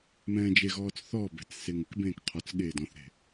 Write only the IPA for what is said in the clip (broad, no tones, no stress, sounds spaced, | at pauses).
m ɛ̃ː d͡ʒ e ɣ ɔː t͡s θ ɔ b ɛ̤ t͡s s e ŋ ɪ k b ẽː k qʰ ɔ t͡s ɠ eː d ɔ̃ θ ɾ e̤